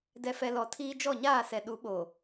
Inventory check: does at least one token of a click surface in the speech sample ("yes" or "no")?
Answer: no